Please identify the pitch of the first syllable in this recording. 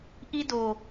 high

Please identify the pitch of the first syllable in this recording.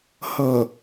low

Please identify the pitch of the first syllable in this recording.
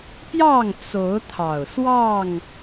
falling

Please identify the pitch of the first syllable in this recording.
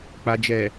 low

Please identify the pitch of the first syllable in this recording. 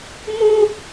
high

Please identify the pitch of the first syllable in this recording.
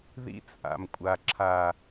high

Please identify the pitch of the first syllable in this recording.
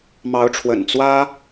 rising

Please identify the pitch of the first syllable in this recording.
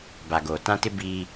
low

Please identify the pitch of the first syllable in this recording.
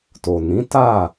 low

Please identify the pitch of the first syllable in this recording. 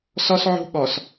high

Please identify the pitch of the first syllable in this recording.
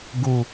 low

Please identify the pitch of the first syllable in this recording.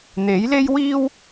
rising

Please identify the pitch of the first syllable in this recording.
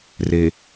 low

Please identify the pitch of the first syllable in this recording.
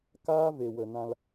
high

